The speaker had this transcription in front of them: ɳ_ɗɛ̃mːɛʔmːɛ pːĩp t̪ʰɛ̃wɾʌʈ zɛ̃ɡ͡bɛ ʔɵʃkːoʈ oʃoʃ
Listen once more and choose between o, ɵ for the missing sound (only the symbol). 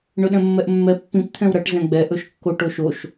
ɵ